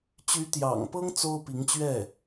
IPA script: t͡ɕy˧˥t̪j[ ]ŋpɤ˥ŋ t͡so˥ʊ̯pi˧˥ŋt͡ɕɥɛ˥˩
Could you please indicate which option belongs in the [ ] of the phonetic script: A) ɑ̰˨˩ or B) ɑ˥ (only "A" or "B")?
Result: A